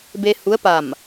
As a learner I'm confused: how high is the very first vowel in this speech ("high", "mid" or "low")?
mid